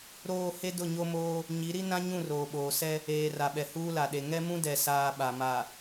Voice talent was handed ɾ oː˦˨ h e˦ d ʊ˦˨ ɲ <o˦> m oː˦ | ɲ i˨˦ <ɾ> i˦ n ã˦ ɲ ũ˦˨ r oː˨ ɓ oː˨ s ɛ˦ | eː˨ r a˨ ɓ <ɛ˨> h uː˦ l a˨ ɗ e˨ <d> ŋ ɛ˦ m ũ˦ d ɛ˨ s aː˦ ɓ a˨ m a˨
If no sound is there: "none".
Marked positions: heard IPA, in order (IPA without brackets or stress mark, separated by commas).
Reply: o˦, ɾ, ɛ˨, none